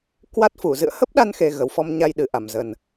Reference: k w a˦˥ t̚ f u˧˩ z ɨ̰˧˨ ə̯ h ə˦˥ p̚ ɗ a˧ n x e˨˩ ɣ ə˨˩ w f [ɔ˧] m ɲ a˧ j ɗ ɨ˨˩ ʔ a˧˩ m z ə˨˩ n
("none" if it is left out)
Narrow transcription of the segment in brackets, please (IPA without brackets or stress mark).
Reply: ɔ˧